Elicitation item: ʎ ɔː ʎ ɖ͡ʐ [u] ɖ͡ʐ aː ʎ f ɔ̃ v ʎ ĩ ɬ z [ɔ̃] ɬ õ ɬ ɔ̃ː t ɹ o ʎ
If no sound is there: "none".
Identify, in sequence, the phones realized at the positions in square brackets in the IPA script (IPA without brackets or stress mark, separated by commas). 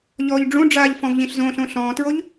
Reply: ũ, õ